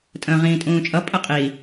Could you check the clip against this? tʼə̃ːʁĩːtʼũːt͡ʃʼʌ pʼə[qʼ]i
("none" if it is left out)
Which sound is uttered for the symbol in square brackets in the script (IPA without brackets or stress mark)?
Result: qʼ